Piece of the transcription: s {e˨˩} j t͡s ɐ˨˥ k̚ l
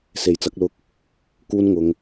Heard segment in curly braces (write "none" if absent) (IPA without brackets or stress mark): e˨